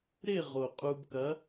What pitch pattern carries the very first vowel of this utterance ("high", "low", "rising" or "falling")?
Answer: falling